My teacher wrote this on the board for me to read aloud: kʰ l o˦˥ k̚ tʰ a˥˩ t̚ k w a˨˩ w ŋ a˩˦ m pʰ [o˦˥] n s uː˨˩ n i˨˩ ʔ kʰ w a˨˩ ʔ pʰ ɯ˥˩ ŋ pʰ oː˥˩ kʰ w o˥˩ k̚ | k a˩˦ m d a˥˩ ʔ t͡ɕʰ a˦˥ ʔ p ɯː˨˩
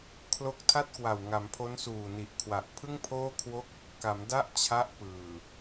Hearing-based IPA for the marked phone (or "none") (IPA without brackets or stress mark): o˦˥